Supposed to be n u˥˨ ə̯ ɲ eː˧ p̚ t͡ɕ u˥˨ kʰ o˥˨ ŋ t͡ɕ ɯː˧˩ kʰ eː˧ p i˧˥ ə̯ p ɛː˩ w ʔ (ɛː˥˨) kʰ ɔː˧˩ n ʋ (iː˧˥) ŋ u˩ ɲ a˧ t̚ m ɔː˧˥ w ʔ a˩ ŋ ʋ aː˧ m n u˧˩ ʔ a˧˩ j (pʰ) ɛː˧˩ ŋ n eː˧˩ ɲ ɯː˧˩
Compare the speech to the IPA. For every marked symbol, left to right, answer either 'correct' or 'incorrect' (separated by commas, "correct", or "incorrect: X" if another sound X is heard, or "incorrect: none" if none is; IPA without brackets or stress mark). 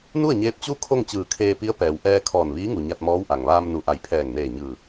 incorrect: ɛː˧, correct, correct